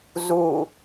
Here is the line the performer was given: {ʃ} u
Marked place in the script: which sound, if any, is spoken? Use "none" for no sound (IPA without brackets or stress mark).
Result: z